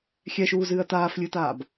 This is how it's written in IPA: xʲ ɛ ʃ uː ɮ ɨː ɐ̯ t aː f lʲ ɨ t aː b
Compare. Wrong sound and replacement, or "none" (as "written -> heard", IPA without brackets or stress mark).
ɮ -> z